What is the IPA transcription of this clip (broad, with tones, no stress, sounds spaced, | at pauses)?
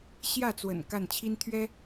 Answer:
ɕ j ä˥˩ t͡s w ə̰˨˩ n k a˥˩ n t͡ɕʰ i˥ n t̪ʰ ɥ ɛ˥